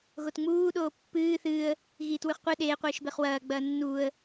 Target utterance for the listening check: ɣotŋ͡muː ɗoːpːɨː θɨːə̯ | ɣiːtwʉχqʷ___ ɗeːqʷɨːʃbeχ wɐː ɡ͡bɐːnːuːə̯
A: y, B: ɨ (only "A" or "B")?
B